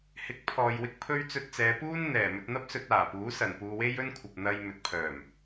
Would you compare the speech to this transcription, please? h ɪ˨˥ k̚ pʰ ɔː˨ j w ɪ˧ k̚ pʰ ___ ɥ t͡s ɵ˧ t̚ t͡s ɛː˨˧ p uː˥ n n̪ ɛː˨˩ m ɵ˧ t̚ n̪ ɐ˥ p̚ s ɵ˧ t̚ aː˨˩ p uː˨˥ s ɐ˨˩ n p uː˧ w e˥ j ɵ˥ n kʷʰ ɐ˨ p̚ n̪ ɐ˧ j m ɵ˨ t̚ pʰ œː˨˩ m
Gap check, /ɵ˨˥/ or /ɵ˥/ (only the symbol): ɵ˥